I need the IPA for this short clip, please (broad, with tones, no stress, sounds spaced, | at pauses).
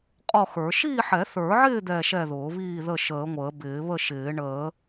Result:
qʼ ɔ˥˨ x ə˞˨˩˦ ʃ iː˥˨ ħ ɛ˨˩˦ θ ə˞˨˩˦ ʕ ɪː˥˨ d̪ ɛ˥˨ ʃ ɛ˥˨ ð ʊː˨˩˦ β iː˥˨ ð ə˥˨ ʃ əː˨˩˦ ŋʷ əː˨˩˦ b ɪː˨˩˦ β ə˥˨ ʃ ɪː˨˩˦ ɳ əː˨˩˦